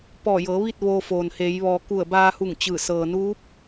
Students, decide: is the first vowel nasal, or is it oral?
oral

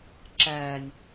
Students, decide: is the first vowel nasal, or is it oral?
oral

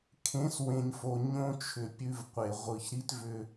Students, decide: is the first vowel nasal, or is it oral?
nasal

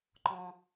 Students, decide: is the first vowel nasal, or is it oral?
nasal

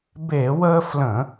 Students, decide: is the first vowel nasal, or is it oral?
oral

